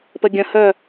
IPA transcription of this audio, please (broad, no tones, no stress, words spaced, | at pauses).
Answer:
pəɡʲə̃hœ